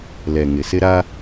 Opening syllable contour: low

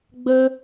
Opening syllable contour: high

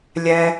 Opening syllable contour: high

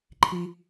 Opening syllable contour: low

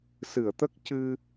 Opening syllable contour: low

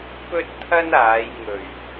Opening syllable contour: high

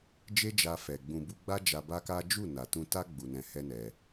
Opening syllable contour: high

